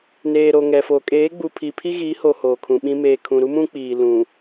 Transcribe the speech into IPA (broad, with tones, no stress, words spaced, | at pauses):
neː˨ɾo˨ ŋɛ˨fo˨ kʼeː˨˦ɡ͡bu˨ pʰi˨pʰi˦ɣi˨˦ho˨ hoː˨kʰũ˨ɓĩ˦ meː˨kʰũ˨ ɾu˦mũ˦ k͡piː˨ lũ˨